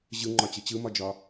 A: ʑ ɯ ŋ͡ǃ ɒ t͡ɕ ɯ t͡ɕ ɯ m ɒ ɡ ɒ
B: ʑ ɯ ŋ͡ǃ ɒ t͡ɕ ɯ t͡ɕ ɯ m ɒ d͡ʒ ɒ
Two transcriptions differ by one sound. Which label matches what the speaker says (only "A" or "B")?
B